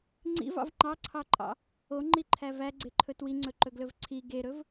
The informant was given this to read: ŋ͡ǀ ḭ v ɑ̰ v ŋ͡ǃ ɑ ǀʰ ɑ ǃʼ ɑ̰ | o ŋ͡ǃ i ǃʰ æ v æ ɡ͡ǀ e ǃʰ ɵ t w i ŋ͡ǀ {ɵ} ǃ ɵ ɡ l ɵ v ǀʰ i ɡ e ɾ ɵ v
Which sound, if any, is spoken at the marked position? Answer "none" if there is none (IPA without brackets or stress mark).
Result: ɵ